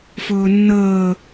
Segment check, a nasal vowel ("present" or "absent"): absent